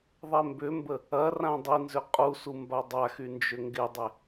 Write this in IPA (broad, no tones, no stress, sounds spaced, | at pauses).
ðˤ ɛ m b ʏ m b ə | ɐ r ã dˤ i n z ʏ qʼ u s u m b a dˤ a x y n d͡ʒ ʏ ŋ ɡ ɪ dˤ ɪ